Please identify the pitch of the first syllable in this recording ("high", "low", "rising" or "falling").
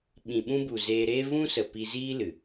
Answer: low